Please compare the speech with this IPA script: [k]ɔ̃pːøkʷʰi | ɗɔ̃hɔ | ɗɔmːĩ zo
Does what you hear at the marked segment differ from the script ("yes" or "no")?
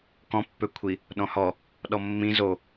no